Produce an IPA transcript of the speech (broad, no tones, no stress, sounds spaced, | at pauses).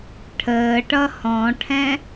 ʈʰ əː ʈ ʌ h ɔ̃ ʈʰ ɛ̃